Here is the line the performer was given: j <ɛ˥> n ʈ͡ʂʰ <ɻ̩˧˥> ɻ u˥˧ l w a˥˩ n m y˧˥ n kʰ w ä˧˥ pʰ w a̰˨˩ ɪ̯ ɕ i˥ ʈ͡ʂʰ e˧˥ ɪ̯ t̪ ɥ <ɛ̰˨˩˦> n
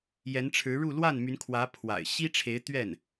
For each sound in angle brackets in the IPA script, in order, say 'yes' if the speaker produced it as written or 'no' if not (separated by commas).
no, yes, no